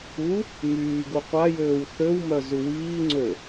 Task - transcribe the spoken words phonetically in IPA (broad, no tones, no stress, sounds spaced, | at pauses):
u | m yː ɡ u qʷ a j øː w θ ø w m œ z u w iː ŋ͡ǀ ø